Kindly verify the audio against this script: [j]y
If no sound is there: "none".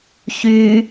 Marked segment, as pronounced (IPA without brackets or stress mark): ç